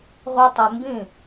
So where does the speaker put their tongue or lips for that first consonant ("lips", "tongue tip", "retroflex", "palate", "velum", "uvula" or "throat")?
uvula